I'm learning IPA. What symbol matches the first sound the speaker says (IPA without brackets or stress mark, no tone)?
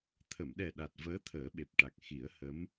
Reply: t̪ʰ